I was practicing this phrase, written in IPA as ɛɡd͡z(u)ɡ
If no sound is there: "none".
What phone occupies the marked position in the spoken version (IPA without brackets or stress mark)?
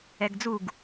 u